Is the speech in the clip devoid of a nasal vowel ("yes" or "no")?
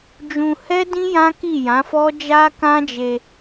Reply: no